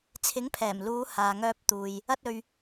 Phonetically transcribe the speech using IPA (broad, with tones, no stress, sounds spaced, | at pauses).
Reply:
t͡sʰ ɪ˨˥ ŋ pʰ ɛː˨˩ m l uː˨˧ h aː˨ ŋ œː˧ p̚ t̪ uː˨ j | ɐ˧ t̚ ɵ˨ ɥ